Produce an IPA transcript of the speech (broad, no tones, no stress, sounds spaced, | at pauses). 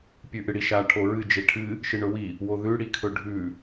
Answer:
pʲ ʉ ʔ ɨ ɽ i ʃ a ʈʰ o ɹ ɨ d͡ʒ e ʈʰ ɨ | ʃ ɨ ɳ ɵ w i | w o ð ʉ ɽ i kʰ ɵ ɖʱ ʉ